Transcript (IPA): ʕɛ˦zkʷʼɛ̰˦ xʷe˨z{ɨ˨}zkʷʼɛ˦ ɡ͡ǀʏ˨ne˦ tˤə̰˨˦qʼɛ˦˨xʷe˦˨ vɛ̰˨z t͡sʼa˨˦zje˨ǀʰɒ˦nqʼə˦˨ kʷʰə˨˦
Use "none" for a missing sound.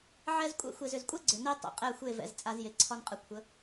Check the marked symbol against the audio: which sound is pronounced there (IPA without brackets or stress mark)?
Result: ʏ˨